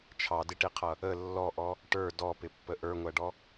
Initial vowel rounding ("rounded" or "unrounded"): unrounded